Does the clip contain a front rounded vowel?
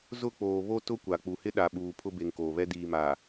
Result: no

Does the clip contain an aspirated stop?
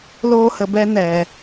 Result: no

